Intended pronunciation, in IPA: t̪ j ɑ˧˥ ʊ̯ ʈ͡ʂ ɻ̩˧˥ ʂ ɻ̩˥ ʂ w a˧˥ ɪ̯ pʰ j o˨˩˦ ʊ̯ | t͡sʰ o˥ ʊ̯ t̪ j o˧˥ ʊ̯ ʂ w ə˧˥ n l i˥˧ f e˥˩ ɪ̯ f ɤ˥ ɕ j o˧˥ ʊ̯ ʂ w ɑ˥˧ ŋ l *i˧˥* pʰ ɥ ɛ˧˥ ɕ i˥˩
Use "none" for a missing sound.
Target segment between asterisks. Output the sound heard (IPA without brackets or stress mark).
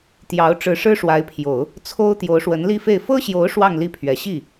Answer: i˥˩